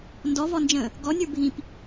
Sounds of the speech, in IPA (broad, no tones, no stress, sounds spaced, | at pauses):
n d ɔ v ɔ n d͡ʒ ə̃ː | ɡ ɔ nʲ ə˞ bʱ ĩ p